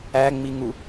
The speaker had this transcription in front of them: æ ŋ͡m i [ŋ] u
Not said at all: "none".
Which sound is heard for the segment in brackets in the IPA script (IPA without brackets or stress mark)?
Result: ŋ